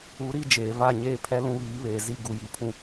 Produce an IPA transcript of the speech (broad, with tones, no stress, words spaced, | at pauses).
u˨˦ɾi˦ d͡ʒeː˨va˦˨ ɲeː˦pʰɛ˦ lũ˦βiː˨˦βeː˨ zi˦ ɡu˨ji˨pʰũ˨